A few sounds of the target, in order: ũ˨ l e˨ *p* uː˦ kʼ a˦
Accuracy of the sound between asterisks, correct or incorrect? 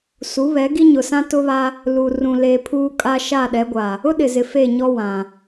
incorrect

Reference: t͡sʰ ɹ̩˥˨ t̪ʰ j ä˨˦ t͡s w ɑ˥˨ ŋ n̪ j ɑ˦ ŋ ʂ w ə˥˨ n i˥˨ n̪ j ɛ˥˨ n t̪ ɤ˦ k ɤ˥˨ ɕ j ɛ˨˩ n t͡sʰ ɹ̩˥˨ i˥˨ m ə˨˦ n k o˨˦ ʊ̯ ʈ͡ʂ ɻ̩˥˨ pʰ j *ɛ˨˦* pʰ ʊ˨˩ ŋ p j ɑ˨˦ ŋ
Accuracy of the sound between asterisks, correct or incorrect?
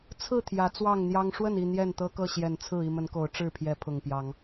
correct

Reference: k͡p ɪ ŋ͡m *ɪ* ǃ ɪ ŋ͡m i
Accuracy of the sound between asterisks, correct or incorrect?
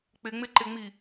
correct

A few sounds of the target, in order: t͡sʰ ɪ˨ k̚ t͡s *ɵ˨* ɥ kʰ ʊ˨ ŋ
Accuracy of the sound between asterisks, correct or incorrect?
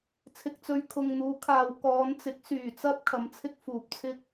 incorrect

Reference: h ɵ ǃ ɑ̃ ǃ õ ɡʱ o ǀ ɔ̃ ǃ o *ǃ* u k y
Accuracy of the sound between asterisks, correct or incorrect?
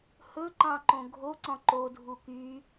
incorrect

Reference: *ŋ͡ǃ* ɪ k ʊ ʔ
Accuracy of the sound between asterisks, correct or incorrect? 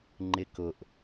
correct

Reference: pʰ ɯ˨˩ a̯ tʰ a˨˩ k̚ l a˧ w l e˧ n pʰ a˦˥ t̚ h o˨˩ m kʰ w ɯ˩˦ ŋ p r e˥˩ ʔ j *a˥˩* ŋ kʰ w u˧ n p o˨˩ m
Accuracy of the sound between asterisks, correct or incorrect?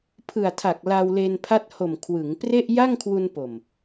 correct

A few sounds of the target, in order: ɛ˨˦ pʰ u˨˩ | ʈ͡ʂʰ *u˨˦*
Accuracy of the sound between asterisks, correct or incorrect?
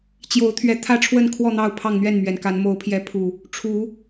correct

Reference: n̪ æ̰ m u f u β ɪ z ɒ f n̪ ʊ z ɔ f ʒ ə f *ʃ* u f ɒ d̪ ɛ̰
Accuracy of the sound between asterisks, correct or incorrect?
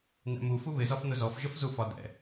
incorrect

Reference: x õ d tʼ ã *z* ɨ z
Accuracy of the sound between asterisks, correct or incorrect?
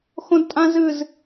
correct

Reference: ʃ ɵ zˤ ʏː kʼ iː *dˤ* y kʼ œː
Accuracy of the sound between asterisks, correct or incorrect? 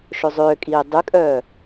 correct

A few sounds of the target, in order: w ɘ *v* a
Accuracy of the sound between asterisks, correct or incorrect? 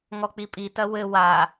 incorrect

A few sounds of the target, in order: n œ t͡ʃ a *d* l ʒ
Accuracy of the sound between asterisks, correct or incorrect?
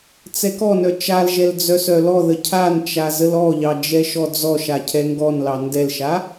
incorrect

